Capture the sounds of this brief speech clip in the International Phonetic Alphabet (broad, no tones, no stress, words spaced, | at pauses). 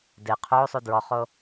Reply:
de qʰo sˤudɹɔχo